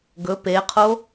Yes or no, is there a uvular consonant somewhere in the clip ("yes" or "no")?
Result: yes